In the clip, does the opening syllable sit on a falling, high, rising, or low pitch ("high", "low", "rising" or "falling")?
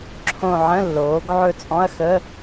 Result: falling